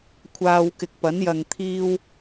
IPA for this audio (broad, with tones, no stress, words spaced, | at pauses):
kʷʰaː˧w kɪ˨k̚pɐ˨˥n jɐ˧ŋt̪ʰiː˥w